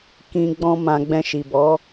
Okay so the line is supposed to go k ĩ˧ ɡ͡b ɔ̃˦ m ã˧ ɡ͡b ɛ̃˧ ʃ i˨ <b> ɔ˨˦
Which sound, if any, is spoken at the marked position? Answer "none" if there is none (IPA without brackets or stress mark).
b